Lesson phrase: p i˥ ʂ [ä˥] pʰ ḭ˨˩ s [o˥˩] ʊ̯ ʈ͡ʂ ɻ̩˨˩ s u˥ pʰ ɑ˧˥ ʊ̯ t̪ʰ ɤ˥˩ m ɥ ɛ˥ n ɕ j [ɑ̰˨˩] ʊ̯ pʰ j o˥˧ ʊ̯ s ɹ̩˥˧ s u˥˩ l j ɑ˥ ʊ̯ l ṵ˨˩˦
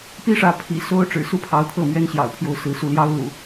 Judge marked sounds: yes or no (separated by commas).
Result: no, no, yes